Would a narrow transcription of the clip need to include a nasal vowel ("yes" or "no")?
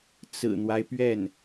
no